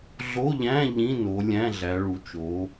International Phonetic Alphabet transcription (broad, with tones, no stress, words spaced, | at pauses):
ɮo˧˥˧ʎæ̃˧˥˧ ʎĩ˧˥˧no˨˦ lʲæ̃˧˥˧ɮæ˨˦ɭu˨˦t͡ʃo˨˦